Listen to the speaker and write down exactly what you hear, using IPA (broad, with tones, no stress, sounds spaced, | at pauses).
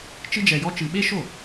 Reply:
t͡ʃ ɨ˥ d͡ʒ ɛ˧ j ɔ˥ t͡ʃ ɨ˧ ɓ e˥ ʃ o˥˩